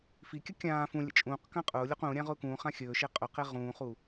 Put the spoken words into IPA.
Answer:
f i kʲ ə kʲ ãː f ũ lʲ ə̰ t͡ʃʼ ũː q k ã qʼ ʊː lʲ o q ũː ɾʲ ã ʁ ʊː k ũː χ ã xʲ ɵː ʃ e qʼ ʊ q e ʁ ũː χ u

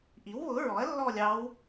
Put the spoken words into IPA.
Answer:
ʔ i˩˥ w β ʊ˩˥ ɹ ɔ˩˥ ɐ̯ lː ɔ˥˧ lʲ ɑ˧˥ w

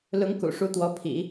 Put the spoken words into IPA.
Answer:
l ʊ˧˥ ŋ k ṵ˨˩ ʂ u˧˥ t̪ w ɔ˧˥ pʰ ḭ˨˩˦

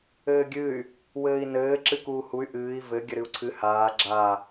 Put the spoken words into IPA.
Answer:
ɘː ɡʲ ɨ y̯ | w ɘː i̯ n ɘː ǁ ɨ k uː h u y̯ ʔ ɨː i̯ v ɘ ɡʲ ɘ ɾ ɨ u̯ ǀʰ ɨ h aː ɡ͡ǁ a

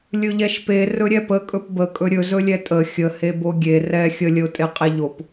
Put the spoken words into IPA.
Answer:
lʲ ɵ ʎ ɛ ʃ p e r ɵ ɾʲ ɛ p ə kʼ ɵ p b ə kʼ ɵ ɾʲ ɵ z ɵ lʲ ɛ tʼ ə xʲ ə h e b o ɡʲ e r ɛ xʲ ə lʲ ə ʊ̯ tʼ e qʼ e ʎ o p

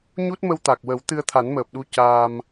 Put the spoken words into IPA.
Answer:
ɲ u˦˥ t̚ m ə˧ w t̪ a˨˩ k̚ w ə˨˩˦ w t̪ ɨ˧ ə̯ t̪ʰ a˨˩˦ n m əː˨˩ p̚ ɗ u˧ c aː˧ m

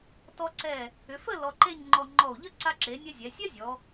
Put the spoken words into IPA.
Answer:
t ɔ˧ ǀ ɛ˧˩ | ʏ˩˧ f ə˥˧ l ɔ˧ ǃ e˥˧ ɲ ŋ͡ǃ ɔ˧ ŋ͡ǃ ɔ˧˩ u̯ ʎ ə˥ ǀ a˧ ǁ e˩˧ nʲ ɛ˧ zʲ ɛ˩˧ sʲ ɛ˥ zʲ ɔ˩˧

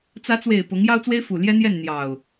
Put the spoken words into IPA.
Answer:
t͡s ä˨˦ t͡s w e˨˩ ɪ̯ p ʊ˨˦ ŋ j ɑ˦ ʊ̯ t͡s w e˦ ɪ̯ f u˨˩ l j ɛ˦ n̪ j ɛ˥˨ n n̪ j ɑ˨˩ ʊ̯

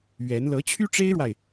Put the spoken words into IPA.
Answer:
ɥ ɛ˧˥ n l ɤ˧˥ t͡ɕʰ y˥ ʈ͡ʂ e˥ ɪ̯ ɻ w a˨ ɪ̯

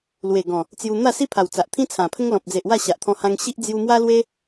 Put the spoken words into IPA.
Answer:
l w e˨˩ ɡ ɔ̃˨˩ | t͡s j u˧ n̪ a˥˧ s i˦ pʰ a˨˩ w t͡s a˨ ʔ t̪ʰ ĩ˦ t͡sʰ ã˨˩ pʰ ə˦ ŋ l ɔ̃˨ p̚ d͡z e˨ ʔ w a˥˧ ɕ a˨ ʔ t̪ʰ ɔ̃˧ h ã˧ ŋ ɕ i˦ ʔ d͡z j u˧ m w a˦ l w e˦

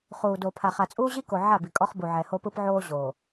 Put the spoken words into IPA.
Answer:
χ uː˨ d oː˨ pʰ a˨ χ a˨ t͡sʼ uː˦ ʑ i˦ k o˨ ʕ a˦˨ b i˨ kʼ ɔ˦ χ b u˨ ʕ ɛ˨ h o˦ p ɯ˦ p ʕ oː˦ ʑ oː˨

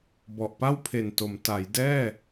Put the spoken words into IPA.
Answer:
b ɔ˨˩ ʔ p a˥˩ w pʰ e˨˩ n t o˩˦ m t a˩˦ j d ɛː˥˩

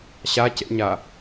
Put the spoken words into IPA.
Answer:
ɕ a c ḛ ɲ a

